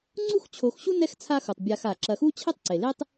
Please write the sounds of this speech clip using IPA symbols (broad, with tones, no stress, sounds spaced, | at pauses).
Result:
ŋ͡ǀ u˦ x t͡ɕʰ o˨ x ɕ u˦ n ɛ˥ x t͡sʰ a˦ x u˩ tˤ bʲ a˨ x a˩ ǁ ɐ˨ x u˥ t͡ɕʰ e˥ tˤ ǀ e˩ l e˥ tˤ